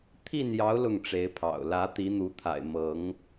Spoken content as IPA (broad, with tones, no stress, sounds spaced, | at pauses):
t̪ʰ i˥˨ n j ɑ˨˦ ʊ̯ l ʊ˥˨ ŋ ʈ͡ʂ e˨˦ ɪ̯ pʰ ɑ̰˨˩ ʊ̯ l ä˨˦ t̪ i˨˦ n̪ u˨˦ t̪ʰ a̰˨˩ ɪ̯ m ɤ˨˦ ŋ